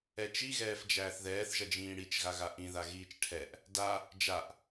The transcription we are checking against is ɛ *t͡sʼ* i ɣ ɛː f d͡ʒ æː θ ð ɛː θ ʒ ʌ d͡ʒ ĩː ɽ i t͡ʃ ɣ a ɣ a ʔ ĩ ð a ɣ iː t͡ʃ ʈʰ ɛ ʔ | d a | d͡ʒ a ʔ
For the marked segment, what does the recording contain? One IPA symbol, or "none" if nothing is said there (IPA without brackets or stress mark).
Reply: t͡ʃ